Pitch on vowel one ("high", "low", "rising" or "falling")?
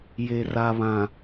low